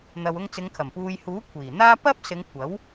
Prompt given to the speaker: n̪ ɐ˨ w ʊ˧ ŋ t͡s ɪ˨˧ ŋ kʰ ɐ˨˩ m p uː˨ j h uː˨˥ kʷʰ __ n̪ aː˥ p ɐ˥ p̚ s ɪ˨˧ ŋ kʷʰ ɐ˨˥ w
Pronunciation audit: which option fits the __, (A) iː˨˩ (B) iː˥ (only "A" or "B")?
A